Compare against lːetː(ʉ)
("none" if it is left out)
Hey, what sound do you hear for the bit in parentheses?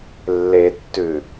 ʉ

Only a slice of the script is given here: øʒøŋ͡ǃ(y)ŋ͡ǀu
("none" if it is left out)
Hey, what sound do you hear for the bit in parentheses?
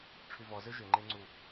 e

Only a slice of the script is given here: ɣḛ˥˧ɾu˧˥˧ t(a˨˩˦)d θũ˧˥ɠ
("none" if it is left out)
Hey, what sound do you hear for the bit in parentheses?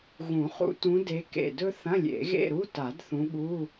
a˨˩˦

